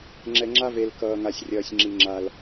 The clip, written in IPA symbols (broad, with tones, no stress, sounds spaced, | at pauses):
ŋ͡ǁ ɛ˨ ŋ͡ǁ a˦ v e˨ l k ʌː˨ ŋ a˨ sʲ rʲ ʌː˨ sʲ ŋ͡ǁ i˨ ŋ͡ǁ a˨ l